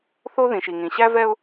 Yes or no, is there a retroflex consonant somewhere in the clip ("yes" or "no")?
no